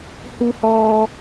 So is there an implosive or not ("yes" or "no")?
no